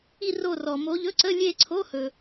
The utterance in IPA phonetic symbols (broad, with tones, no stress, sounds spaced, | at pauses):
i˥˧ r o˥˧ r ɔ˨ m o˨˦ ʎ ɵ˧˥˧ ǀ ə˧˥˧ lʲ e˥˧ ǀʰ o˧˥˧ h ɵ˨